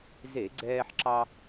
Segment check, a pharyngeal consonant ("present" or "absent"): present